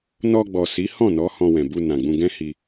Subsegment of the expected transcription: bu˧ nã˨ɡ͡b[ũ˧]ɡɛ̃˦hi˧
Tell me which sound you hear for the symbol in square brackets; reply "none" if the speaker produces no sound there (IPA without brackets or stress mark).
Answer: ũ˧